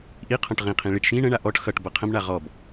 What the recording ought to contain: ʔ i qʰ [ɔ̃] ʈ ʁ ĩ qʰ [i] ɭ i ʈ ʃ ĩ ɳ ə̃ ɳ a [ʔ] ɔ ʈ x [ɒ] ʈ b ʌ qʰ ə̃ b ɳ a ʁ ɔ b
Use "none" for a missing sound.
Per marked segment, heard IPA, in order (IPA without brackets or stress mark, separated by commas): ɔ̃, ĩ, ʔ, ʌ